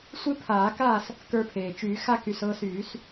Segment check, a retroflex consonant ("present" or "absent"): absent